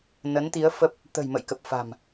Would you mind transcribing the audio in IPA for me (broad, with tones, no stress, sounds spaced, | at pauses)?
n ə˨˦ n t̪ i˨˦ ə̯ f ə˦˥ p̚ | t̪ ə̤˨˩ j m ə̰˧˨ j k ə˨˩ p̚ f a̤˨˩ m